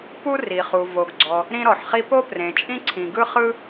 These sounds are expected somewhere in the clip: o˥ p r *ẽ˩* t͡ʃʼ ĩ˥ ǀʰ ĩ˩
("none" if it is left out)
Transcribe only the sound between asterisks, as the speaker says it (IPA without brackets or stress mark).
ẽ˩